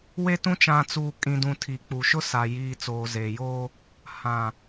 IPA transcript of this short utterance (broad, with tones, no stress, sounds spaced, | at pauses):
w e˦ t ũ˦ t͡ʃ ã˨ t͡s uː˨ kʼ ĩ˨ d ũ˨ tʰ i˨ k͡p u˨ ʃ ʊ˦ s a˨ j iː˨ t͡s oː˨ z eː˨ j oː˦ | h ã˨